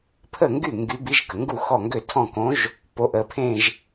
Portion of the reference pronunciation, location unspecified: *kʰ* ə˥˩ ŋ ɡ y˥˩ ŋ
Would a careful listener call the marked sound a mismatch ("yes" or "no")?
yes